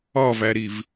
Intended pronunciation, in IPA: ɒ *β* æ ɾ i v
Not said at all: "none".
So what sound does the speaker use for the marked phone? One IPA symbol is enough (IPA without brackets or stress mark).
v